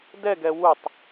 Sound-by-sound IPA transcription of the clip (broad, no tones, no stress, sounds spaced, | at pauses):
d ɛ ɡ ɛ w u tˤ